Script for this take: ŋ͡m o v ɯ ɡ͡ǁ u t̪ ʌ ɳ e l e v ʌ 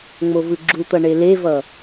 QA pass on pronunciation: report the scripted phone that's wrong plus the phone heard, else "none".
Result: none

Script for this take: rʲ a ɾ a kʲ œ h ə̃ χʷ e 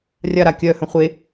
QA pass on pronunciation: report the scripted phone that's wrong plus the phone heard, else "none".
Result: none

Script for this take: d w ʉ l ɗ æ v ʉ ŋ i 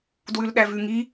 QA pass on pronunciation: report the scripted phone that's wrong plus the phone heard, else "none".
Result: none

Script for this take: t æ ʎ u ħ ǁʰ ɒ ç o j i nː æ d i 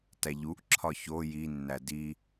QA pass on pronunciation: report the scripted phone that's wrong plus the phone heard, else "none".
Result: ħ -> ʔ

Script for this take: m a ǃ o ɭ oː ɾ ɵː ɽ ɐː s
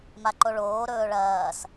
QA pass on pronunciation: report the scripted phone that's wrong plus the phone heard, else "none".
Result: ɽ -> ɭ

